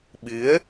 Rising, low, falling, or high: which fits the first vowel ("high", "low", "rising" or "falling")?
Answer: rising